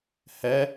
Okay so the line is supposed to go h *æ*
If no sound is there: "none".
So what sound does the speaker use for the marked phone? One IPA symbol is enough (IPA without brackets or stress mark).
ɛ